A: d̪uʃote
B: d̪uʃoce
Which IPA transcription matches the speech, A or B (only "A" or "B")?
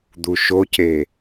B